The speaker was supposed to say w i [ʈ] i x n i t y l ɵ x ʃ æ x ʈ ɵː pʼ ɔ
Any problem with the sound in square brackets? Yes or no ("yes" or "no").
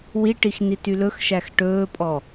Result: no